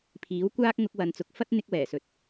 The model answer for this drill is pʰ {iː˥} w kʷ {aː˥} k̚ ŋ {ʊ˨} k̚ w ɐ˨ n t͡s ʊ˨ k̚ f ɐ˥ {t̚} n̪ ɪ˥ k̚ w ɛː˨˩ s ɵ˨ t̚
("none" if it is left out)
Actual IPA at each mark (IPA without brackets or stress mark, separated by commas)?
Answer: iː˨˥, aː˥, ʊ˧, t̚